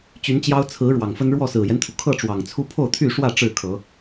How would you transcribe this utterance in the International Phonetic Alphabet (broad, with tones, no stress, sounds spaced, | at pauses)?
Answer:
t͡ɕ y˨˦ n t͡ɕ j ɑ˦ ʊ̯ t͡sʰ ɹ̩˨˦ ɻ w ɑ˨˩ ŋ f ə˦ n ɻ w ɔ˥˨ s ɹ̩˨˩ j ɛ˦ n t̪ʰ u˩ kʰ ɤ˥˨ ʈ͡ʂ w ɑ˨˩ ŋ t͡sʰ u˦ pʰ o˥˨ ʊ̯ t̪ʰ y˥˨ ʂ w ä˥˨ ʈ͡ʂ ɻ̩˥˨ kʰ ɤ˨˦